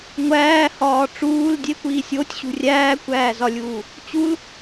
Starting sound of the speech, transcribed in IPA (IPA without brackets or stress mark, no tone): ŋʷ